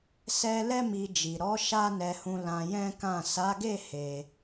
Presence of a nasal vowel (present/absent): present